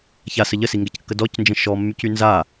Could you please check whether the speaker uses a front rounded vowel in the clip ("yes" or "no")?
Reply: yes